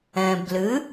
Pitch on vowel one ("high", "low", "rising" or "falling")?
low